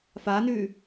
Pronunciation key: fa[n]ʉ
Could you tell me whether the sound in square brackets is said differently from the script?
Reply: no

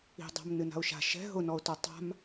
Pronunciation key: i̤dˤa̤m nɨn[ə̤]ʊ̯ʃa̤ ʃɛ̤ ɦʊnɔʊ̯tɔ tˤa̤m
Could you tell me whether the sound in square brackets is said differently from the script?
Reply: yes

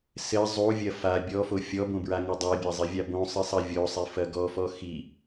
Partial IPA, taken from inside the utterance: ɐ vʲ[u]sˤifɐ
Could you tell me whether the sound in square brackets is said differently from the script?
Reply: yes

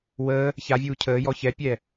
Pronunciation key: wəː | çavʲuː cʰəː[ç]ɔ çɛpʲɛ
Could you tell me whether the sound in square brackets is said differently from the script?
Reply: yes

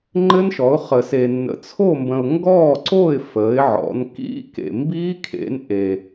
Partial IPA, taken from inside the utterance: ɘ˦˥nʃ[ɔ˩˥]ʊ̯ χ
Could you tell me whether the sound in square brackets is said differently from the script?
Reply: no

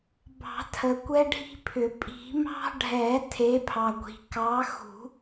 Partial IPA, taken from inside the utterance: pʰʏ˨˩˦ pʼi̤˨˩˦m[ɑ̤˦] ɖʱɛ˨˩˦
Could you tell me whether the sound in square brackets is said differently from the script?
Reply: no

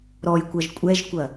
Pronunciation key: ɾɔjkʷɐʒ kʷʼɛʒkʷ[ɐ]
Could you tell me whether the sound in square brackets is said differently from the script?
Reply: no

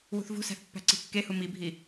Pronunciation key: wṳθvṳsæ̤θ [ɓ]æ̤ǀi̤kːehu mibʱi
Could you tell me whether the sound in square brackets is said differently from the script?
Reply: yes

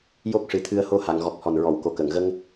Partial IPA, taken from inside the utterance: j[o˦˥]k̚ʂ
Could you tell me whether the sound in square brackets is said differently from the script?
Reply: no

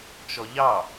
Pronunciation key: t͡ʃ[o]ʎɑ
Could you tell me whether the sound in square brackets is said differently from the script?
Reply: yes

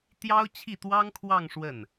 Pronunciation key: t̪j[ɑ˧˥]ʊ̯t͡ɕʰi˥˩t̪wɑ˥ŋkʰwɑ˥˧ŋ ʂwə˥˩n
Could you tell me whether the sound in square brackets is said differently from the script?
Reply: yes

